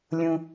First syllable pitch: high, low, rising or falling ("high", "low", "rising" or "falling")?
low